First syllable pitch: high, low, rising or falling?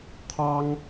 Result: high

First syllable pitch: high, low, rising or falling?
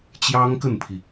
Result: high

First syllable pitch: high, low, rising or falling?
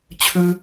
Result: high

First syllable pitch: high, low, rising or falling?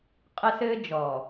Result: high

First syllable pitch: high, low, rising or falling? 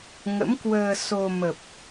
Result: rising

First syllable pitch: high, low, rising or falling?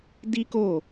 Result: high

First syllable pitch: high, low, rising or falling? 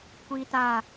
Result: high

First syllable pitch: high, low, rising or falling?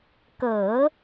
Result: low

